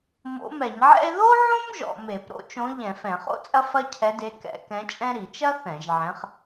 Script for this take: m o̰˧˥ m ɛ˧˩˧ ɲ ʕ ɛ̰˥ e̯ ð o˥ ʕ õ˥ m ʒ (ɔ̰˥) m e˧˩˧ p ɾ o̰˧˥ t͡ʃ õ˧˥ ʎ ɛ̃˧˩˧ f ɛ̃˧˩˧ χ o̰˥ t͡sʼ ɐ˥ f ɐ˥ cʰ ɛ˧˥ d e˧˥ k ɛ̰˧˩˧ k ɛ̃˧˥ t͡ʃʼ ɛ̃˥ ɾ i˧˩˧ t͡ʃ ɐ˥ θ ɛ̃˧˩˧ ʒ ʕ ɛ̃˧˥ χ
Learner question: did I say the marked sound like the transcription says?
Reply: no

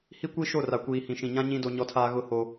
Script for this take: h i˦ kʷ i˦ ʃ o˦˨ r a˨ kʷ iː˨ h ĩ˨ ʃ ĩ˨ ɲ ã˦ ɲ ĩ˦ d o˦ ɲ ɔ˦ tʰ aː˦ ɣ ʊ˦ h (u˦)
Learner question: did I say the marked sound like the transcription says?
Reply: no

